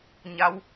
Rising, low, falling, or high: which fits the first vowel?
rising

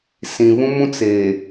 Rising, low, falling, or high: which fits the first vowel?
low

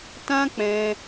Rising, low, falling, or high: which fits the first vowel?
high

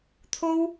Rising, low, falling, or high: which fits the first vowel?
high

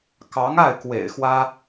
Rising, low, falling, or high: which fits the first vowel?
rising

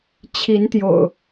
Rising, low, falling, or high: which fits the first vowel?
rising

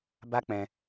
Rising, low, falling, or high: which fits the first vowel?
high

